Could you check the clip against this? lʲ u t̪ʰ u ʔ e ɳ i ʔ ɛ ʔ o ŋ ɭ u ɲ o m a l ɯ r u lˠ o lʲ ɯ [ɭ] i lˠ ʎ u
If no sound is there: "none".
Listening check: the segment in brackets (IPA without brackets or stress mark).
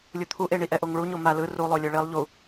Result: ɭ